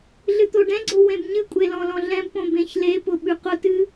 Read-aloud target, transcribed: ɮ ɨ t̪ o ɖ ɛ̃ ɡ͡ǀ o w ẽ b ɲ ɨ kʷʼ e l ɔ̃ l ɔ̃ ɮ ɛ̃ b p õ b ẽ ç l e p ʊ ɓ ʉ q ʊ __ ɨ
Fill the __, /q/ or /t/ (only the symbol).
t